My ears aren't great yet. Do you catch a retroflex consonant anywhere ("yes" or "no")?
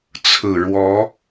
yes